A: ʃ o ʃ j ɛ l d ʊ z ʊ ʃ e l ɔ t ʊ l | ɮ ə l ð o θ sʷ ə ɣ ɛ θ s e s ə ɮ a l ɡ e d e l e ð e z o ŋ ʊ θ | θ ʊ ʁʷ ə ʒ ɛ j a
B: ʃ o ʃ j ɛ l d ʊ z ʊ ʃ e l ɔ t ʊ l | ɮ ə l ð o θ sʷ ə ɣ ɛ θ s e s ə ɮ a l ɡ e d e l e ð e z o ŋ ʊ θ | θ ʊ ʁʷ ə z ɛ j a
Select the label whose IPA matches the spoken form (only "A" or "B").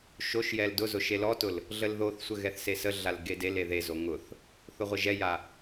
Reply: A